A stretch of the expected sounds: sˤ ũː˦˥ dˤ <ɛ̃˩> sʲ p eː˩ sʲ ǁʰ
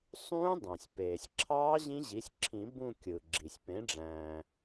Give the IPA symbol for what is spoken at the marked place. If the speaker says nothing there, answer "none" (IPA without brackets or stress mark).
æ̃˩